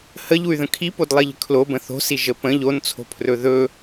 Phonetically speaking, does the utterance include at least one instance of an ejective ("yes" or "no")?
no